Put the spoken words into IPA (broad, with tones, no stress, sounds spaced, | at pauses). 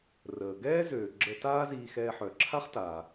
r əː˩ ɡ ɛː˥ z øː˩ ɡ͡ǁ ə˧ t aː˥ z iː˧ x ɛː˧ ħ œ˩ ǁʰ a˥ χ t aː˩